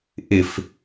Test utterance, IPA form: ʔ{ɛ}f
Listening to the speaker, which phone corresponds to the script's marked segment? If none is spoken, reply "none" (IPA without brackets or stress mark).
ɪ